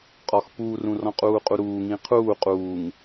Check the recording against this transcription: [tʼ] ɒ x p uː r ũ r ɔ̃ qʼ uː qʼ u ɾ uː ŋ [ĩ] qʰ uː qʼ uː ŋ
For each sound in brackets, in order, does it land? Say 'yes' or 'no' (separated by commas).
no, yes